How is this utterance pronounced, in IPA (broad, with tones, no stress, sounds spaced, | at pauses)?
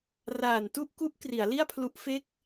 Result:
r aː˨˩ n t u˥˩ ʔ k u˦˥ ʔ k r i˩˦ a̯ l i˥˩ a̯ pʰ l u˦˥ ʔ f e˥˩ k̚